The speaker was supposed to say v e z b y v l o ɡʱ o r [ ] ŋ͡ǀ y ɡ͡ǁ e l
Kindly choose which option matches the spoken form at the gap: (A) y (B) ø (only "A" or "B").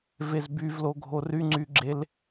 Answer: A